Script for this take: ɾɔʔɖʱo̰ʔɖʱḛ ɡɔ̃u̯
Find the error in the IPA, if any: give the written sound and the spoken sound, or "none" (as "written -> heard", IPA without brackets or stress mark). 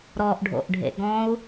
none